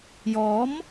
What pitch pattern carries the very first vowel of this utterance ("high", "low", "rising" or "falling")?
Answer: rising